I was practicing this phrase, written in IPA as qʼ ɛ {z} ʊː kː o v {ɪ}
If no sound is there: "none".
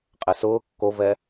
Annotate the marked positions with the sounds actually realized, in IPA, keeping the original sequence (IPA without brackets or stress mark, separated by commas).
s, ɛ